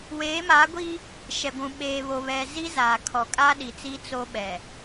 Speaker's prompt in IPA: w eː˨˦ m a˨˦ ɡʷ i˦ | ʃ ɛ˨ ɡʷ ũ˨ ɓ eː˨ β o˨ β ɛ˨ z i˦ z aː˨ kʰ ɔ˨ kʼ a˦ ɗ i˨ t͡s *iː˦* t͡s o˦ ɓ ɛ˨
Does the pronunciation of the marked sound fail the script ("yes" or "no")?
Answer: yes